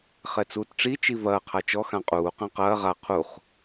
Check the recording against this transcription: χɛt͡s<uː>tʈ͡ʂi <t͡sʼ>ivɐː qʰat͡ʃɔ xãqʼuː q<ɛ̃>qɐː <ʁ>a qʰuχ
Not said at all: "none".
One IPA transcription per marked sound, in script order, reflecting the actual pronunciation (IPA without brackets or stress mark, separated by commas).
uː, t͡ʃ, ɛ̃, ʁ